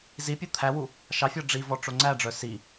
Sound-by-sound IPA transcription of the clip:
zipʲu t̪ʰæwu | ʃɑfʲɔ ɖ͡ʐivɔ ʈ͡ʂoŋ͡ǀæɖ͡ʐœ si

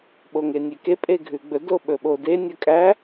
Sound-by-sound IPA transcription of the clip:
ɓoŋenʲeke pʼeɡʱʉɡ͡bɵ doɓɵɓode nʲɵkʼæ

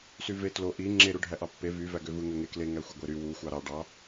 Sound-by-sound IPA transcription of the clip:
syve tlo ʔi ŋ͡ǁe ɾuɖʱæʔɑpːe vy væɡøvɯ ŋøŋekle ŋæxʷeɡʷeɾy wu xʷɑɾɑ ɖɑ

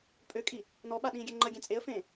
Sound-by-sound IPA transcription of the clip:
pʼøkʼi | nɔɓaɗĩːɡʲɛ ŋ͡ǃəɡʲɛ̃ t͡sʼeə̯fẽː

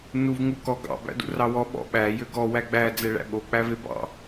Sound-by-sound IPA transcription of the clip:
nuvŋukɔ ɡɑ̰ bæ̰dṵrɑwɔ ɓɔ̰ ɓæ jøɡɔ wæɡ͡bæ d͡zɛɭæ̰ɓo k͡pævebɑ̰

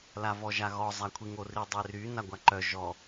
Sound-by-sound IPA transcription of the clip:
lavɔʒaɣɔ zˤakʷʰiŋori dˤery naɡʷaǃœ ʒɔ

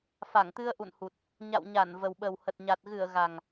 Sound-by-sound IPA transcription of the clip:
fa˧˩ŋt̪ɨ˧ə̯ʔṵ˧˨nhu˨˩t̚ | ɲa̰˧˨wɲa˧˩n və˨˩wɓə˨˩whə˨˩t̚ɲa˨˩t̚ ɣɨ˧˩ə̯ ɣa˨˩ŋ

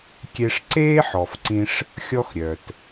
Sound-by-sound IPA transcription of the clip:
kʲe˧ʂǀeː˦ħɔ˨fǀĩ˧ʂ | xʲɔ˦xɾʲœ˨t

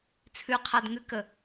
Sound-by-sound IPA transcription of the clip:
t͡sʰʉqʰadŋʉkə

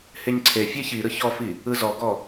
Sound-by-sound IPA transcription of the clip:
heɲǀʰefʲɛ çi ɾɯçɔfi | ɯzɔɡɔ

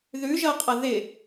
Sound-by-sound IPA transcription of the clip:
ðʉ ʒʌqʼʌ ðɪ

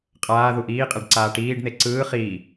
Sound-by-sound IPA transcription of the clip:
qʼaː ðuʔiːqʼɛɖ ǀaːʈiːɖn̪e ǀɯː χiː

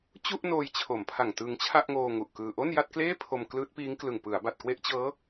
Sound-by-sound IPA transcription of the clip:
t͡ɕu˥˩ʔnoː˧j t͡ɕʰo˩˦mpʰa˨˩ŋtɯ˧ŋ t͡ɕʰa˥˩ʔŋoː˧ ŋu˨˩ʔkɯː˧ ʔo˥˩nja˥˩t̚ kleː˥˩ pʰo˧mklɯː˦˥t̚piː˦˥ŋklɯ˨˩ŋ pɯ˩˦a̯ba˨˩t̚kwe˦˥ʔt͡ɕɤː˦˥

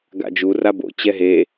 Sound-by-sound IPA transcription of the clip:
ɡa̰d͡ʒu rabo̰ t͡ɕɛɦe

